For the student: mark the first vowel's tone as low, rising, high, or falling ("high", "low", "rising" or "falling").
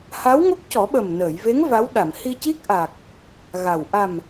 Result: rising